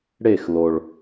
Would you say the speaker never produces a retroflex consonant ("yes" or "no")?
no